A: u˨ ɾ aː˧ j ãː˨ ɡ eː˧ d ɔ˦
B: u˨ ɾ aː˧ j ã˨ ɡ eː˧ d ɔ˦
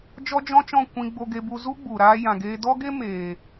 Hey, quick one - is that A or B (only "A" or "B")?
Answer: B